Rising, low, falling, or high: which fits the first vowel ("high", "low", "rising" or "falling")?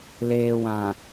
low